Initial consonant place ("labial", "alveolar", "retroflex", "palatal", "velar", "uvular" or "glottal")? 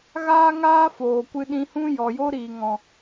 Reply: velar